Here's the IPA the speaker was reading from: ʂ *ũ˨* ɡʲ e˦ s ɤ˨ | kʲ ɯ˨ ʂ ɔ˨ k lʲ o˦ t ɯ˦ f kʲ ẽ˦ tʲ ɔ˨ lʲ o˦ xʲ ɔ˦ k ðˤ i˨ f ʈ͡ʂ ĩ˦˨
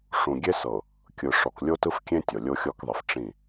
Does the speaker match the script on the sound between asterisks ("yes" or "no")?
yes